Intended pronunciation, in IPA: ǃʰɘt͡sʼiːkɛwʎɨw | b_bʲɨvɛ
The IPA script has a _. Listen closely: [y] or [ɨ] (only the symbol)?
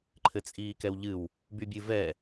y